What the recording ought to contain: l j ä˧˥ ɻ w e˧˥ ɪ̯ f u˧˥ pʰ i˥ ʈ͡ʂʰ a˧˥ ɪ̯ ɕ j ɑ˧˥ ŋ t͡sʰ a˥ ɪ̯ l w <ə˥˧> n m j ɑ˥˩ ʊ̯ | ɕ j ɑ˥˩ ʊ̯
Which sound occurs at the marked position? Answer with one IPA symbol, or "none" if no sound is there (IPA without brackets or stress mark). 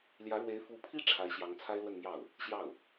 ə˥˧